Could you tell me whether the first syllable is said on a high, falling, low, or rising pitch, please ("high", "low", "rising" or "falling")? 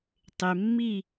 low